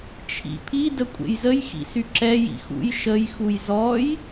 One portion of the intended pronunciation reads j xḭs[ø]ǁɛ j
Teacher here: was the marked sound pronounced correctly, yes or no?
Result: no